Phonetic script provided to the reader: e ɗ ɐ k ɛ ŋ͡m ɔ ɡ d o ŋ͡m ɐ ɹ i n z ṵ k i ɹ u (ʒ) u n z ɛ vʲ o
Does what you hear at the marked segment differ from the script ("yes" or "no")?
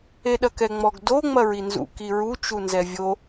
yes